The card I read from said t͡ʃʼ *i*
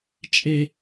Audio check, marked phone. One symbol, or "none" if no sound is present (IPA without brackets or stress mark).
e